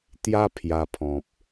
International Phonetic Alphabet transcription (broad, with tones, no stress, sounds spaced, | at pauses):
t̪ j a˦ pʰ j a˧ pʰ ɔ̃˨ p̚